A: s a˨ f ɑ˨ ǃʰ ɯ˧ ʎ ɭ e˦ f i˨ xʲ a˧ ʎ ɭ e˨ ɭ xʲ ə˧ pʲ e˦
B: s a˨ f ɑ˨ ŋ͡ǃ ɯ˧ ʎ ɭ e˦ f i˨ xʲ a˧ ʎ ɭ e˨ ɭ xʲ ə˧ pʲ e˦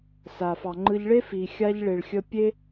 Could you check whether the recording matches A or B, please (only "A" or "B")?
B